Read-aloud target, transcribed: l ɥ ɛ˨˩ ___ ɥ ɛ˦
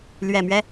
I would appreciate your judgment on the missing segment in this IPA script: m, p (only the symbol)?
m